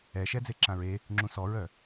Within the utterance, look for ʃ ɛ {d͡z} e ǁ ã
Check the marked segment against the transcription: correct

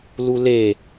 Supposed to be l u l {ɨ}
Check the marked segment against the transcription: incorrect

